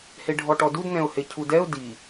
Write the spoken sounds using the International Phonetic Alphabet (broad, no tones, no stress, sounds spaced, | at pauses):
h e ɖʱ ɔ ʈ ɔ d u d n ɛ̃ ʊ̯ h e cʰ u d ɛ ʊ̯ d i